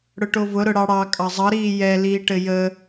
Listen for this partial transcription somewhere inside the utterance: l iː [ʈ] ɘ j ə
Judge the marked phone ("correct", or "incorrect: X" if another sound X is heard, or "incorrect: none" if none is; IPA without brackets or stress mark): correct